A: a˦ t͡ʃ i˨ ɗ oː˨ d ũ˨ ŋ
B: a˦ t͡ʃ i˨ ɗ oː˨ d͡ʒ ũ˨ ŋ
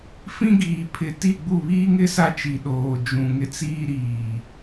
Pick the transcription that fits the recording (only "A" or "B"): B